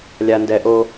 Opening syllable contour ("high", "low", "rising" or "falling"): low